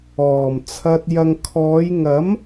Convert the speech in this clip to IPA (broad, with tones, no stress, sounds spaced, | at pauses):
ɔː˨˩ m t͡sʰ ɐ˧ t̚ j ɐ˨ ŋ kʰ ɔː˨˧ j ŋ ɐ˨˥ m